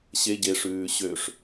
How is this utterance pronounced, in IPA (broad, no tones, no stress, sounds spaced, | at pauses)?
ɕ e ɟ e ʂ ʉː ɕ ø ʂ